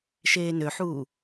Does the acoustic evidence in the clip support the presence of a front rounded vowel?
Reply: yes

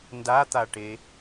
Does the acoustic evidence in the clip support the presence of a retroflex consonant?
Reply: yes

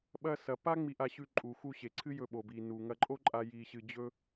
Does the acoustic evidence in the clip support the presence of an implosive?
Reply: yes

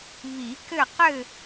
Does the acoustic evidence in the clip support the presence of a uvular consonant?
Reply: yes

